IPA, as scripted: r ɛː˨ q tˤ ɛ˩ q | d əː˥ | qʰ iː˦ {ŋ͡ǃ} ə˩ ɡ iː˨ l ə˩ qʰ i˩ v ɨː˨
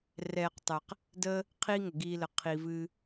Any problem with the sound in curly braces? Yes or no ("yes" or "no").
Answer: yes